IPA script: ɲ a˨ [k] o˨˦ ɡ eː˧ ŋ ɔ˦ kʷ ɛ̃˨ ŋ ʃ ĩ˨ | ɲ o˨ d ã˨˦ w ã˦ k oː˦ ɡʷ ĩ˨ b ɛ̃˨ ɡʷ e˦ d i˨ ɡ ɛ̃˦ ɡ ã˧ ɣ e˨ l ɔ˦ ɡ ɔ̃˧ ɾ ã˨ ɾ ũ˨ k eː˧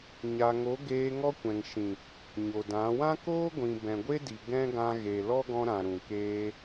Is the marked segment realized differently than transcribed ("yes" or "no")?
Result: yes